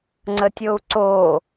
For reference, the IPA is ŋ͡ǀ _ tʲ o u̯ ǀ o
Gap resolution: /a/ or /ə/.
ə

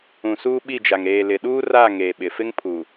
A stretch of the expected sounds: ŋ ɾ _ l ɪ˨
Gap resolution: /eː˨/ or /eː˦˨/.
eː˨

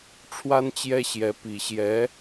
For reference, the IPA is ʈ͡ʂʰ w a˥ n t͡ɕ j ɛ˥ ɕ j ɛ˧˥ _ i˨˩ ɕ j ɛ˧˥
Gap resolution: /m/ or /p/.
p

